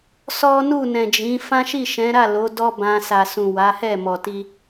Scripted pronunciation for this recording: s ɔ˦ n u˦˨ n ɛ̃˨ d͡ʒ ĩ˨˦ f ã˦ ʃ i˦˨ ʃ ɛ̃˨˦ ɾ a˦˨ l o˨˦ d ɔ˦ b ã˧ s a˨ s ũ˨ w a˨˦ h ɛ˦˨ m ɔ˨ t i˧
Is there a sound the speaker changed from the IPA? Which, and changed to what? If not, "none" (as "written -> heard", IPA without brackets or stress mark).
none